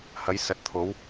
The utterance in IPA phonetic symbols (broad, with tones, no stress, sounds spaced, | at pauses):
h ɐ˨˧ j s ɐ˨ t̚ t̪ʰ o˨˧ w